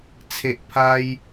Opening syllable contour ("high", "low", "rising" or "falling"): low